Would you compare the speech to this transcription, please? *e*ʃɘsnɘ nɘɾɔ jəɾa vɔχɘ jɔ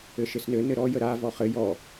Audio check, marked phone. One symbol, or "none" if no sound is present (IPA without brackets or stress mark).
ɘ